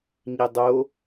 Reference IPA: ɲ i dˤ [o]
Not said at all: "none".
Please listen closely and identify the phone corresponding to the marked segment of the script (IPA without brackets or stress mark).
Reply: o